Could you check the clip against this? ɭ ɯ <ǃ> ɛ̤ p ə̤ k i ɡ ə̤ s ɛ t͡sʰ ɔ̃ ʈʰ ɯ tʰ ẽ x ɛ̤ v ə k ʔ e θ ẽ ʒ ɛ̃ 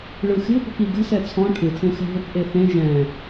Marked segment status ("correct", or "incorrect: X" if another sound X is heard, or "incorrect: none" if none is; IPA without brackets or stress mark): incorrect: x